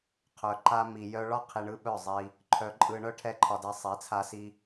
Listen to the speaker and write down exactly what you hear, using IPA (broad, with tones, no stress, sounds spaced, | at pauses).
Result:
qʰ œ˨ ǃ a˧ m i˨ j œ˧ ɭ ɒ˦ qʰ i˧ ɳ ɯ˦ ɓ œ˦˨ zˤ i˧ | ǃʰ œ˧ ǃʼ ɯ˧ ɳ œ˦ ʈʰ ɛ˦ ǃʰ ɒ˧ d ɛ˧ sˤ i˨˦ t͡sʰ a˧ s i˧